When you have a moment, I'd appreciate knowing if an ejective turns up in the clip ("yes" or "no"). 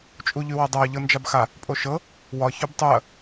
yes